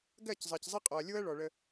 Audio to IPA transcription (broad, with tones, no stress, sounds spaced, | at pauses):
ɡ ɜ˦˨ c zˤ ɜ˨ c zˤ i˦ qʼ ɔ˨ ɐ̯ lʲ o˦ ɐ̯ ɭ ɔ˨ ɭ ə˦